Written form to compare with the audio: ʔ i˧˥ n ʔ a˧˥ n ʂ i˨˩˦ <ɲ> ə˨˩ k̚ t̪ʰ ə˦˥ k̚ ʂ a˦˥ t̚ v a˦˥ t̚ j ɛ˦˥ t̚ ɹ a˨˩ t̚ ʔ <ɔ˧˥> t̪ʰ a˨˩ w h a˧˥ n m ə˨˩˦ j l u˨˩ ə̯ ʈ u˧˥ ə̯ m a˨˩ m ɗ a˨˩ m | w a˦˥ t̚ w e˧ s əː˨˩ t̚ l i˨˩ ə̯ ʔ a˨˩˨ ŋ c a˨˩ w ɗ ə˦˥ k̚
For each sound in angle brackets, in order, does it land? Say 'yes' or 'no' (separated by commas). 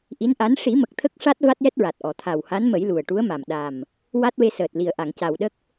no, no